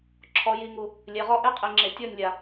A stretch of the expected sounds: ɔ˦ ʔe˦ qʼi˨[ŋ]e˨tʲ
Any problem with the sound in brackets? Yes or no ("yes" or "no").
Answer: yes